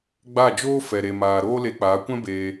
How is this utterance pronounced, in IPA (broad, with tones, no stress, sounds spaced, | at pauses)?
ɡ͡b a˦˨ d͡ʒ oː˦ f ɛ˨ ɾ e˨ m aː˨ ɾ oː˦ l e˧ k͡p aː˨˦ kʷ ɛ̃˦ b eː˧